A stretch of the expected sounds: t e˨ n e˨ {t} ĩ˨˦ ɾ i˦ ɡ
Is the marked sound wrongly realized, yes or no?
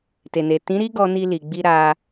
no